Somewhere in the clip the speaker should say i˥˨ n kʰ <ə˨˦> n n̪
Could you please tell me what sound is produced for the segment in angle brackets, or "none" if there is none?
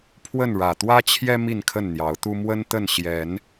ə˥˨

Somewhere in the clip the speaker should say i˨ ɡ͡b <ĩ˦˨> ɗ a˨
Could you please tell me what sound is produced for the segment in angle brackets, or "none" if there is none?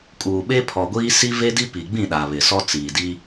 ĩ˦˨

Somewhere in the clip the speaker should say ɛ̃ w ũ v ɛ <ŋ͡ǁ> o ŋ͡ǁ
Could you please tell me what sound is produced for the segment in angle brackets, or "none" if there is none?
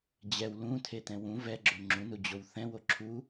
ɡ͡ǁ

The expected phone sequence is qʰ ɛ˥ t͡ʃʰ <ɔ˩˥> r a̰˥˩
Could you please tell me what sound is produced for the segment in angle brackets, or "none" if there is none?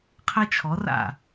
ɔ˩˥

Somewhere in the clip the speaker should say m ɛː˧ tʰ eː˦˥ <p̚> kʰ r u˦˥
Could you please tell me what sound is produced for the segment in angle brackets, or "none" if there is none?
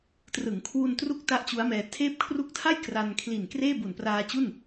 p̚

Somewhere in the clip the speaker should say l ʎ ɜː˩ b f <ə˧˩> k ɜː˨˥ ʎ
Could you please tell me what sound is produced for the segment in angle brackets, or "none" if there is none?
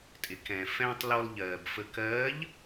ə˧˩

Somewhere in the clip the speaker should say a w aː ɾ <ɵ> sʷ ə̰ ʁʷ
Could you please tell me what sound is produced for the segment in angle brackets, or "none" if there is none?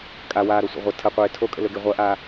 o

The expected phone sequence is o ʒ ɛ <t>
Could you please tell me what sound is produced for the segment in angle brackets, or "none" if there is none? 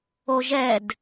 d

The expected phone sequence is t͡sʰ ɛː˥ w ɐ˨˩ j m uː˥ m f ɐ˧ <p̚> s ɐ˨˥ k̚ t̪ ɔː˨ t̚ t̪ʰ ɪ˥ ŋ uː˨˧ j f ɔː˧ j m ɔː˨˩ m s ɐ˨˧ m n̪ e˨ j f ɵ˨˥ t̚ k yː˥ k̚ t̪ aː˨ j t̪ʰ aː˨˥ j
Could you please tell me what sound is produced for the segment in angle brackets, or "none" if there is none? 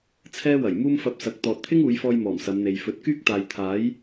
p̚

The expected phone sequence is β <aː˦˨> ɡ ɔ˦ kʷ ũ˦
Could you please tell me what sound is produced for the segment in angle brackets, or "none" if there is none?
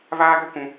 aː˦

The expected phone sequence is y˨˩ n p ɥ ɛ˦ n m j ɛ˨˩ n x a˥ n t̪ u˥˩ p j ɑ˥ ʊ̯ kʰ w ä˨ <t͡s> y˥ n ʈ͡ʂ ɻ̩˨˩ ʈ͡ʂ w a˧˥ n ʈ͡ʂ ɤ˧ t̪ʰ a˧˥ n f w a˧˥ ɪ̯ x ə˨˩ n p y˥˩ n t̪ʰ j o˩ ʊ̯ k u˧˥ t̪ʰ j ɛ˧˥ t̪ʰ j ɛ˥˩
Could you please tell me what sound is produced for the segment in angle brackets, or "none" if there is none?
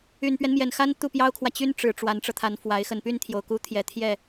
t͡ɕ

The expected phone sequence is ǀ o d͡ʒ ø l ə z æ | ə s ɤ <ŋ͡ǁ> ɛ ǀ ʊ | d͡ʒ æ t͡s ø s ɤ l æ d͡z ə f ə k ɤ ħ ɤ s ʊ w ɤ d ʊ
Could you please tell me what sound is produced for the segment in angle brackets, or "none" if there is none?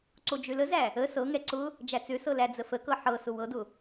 ŋ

